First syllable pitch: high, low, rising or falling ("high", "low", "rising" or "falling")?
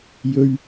high